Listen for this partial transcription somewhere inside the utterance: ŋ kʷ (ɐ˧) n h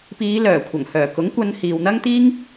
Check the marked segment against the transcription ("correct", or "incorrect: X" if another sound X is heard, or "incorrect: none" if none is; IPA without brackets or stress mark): correct